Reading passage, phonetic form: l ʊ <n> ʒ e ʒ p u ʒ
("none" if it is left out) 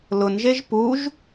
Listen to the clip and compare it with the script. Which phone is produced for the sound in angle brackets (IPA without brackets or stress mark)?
n